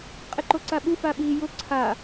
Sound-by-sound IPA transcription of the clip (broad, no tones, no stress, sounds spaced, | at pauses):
qʼ ɪ ǃ o ǀ a ɓ u f a ɓ iː j ʊ ǀʰ a